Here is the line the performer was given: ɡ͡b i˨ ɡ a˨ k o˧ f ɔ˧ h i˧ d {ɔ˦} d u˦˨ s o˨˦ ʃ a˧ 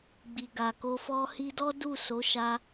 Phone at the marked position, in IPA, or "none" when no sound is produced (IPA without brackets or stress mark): ɔ˦